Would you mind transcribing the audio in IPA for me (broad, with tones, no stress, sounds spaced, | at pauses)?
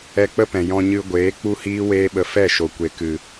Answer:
ɛ˧ k͡p ə˦ p ɛ̃˨ j ɔ̃˧ ɲ ɨ˧ ɡʷ eː˨˦ k͡p u˦ h iː˦ w eː˦ ɓ ə˧ f ɛ˦˨ ʃ o˨ kʷ e˨ k ɨ˨